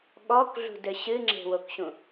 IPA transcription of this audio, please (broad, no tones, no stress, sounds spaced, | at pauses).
ɠ ɔ k ɮ ṳ d ɘ ɕ ɨ ŋ͡ǁ e̤ w o k ɕ ũ